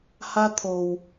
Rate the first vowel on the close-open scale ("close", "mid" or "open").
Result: open